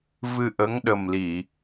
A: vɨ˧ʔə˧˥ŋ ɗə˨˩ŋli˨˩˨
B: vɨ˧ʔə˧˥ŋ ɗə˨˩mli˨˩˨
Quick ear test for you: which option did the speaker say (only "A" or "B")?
B